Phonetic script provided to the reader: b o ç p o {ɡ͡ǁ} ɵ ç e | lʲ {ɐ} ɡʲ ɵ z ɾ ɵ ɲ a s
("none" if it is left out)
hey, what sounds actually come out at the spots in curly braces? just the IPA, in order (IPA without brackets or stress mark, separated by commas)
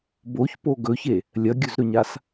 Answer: ɡ, ɐ